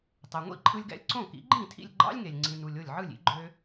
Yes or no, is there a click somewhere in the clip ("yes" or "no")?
yes